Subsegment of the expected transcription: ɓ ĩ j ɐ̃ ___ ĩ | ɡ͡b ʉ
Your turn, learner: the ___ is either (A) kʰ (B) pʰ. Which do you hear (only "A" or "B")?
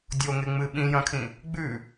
A